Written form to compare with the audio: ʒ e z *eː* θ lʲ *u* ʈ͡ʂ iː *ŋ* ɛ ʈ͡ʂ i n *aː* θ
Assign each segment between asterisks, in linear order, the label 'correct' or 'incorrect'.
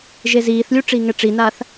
incorrect, correct, correct, correct

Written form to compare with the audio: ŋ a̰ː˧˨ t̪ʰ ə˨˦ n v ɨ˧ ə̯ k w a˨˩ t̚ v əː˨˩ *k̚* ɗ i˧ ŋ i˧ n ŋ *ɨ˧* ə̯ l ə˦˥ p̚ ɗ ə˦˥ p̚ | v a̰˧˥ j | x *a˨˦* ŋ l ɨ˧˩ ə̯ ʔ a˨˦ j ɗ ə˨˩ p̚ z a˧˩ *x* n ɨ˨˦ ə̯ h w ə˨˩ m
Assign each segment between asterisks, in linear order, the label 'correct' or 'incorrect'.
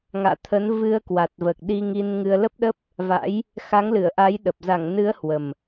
correct, correct, correct, incorrect

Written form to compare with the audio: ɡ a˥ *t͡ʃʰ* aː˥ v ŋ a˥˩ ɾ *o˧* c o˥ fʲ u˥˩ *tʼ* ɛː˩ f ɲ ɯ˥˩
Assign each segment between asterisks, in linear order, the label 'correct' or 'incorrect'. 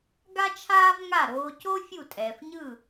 correct, incorrect, correct

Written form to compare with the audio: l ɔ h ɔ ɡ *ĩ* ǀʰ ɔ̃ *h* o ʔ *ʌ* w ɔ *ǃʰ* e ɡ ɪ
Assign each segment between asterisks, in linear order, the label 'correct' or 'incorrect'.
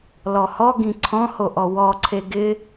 correct, correct, incorrect, incorrect

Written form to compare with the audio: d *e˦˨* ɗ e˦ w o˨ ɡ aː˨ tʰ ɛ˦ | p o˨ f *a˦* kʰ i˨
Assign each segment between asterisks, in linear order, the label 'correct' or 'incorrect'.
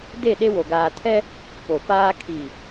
correct, incorrect

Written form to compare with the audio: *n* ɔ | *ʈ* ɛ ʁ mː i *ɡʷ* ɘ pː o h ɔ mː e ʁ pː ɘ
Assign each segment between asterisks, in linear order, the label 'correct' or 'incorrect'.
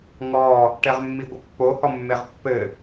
incorrect, correct, correct

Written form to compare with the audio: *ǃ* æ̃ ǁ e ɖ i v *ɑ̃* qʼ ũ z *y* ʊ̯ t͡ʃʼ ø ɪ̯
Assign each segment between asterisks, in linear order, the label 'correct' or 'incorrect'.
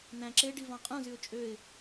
incorrect, correct, correct

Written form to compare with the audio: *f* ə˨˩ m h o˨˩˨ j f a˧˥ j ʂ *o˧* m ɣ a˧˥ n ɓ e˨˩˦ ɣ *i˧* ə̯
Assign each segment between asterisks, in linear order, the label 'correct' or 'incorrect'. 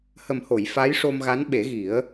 incorrect, correct, incorrect

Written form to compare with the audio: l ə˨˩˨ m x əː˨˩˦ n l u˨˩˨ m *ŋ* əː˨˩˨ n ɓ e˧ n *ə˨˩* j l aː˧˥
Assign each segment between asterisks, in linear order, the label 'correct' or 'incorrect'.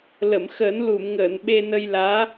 correct, incorrect

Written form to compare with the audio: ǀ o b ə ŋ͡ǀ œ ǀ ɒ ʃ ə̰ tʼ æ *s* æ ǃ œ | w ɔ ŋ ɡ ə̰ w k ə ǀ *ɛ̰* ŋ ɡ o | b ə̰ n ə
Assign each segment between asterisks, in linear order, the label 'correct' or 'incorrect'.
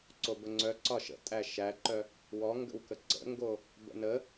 incorrect, incorrect

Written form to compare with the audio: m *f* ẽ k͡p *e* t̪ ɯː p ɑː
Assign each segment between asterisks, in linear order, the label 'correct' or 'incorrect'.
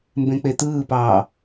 incorrect, correct

